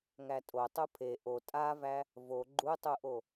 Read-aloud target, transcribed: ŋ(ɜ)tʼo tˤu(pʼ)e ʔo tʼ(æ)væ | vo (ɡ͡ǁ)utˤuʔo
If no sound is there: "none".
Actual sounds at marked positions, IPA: æ, pʰ, a, ɡ͡ǃ

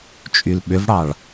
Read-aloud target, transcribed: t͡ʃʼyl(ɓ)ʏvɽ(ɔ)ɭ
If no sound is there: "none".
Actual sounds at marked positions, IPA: ɓ, ɑ

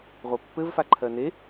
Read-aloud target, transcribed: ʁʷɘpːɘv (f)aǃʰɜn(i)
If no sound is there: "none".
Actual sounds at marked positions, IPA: f, e

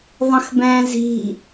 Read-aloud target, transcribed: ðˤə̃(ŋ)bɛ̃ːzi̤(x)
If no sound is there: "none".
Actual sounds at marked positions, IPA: x, none

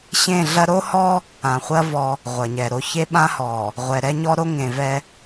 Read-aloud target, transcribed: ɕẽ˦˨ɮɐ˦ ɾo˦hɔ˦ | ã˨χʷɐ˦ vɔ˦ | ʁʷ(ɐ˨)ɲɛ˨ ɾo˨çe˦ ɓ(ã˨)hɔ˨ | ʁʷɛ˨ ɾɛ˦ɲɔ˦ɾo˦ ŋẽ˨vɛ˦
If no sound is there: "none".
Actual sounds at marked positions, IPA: ɐ˨, ã˦

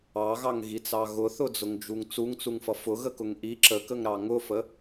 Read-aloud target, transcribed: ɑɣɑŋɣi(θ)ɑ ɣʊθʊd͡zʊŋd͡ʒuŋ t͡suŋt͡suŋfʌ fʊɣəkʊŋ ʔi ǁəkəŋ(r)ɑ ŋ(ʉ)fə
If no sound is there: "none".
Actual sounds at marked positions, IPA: t͡s, ɾ, ʊ

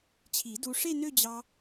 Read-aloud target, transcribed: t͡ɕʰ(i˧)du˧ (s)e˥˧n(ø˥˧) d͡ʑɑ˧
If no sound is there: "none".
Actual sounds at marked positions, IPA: i˨˩˦, ʂ, ø˥˧

